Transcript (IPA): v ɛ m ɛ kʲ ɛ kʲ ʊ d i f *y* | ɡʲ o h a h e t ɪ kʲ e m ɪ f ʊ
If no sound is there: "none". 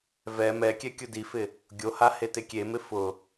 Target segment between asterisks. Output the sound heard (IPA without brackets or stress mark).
ɪ